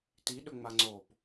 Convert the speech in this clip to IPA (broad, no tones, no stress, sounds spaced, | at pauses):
t i ɗ ɵ ŋ͡m a ŋ͡ǀ o p